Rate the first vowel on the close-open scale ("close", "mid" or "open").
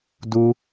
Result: close